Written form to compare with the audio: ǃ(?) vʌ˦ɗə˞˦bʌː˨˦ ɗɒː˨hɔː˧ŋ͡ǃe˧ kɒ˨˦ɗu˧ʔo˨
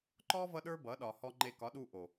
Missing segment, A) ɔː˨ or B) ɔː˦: B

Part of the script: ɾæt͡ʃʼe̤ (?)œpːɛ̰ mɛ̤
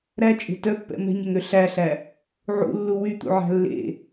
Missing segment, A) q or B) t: B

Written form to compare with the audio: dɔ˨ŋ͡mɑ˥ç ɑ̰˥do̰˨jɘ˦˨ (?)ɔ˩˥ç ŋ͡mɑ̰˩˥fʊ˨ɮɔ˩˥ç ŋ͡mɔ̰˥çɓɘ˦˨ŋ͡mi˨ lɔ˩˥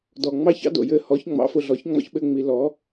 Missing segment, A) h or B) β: A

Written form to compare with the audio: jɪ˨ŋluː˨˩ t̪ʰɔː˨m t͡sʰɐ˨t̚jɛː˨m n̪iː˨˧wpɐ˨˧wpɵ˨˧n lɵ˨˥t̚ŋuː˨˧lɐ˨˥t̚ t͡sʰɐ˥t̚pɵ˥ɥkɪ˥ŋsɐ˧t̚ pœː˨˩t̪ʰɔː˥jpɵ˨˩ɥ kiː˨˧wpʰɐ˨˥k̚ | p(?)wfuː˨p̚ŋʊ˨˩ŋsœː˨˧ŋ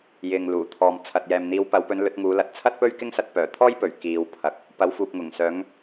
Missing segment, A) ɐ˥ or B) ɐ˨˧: B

